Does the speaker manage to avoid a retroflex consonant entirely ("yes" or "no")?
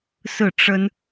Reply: no